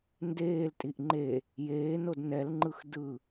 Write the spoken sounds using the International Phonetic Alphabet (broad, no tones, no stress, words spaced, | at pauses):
ndeːltʼiʔ ŋ͡ǃe | jeːnod nɛlŋ͡ǃɯx dɯ